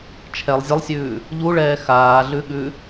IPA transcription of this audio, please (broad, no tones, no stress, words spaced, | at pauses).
t͡ʃʰɛlˠ zʲəlˠsʲʉː | ʎuɭɛː xaːɮʉɠʉ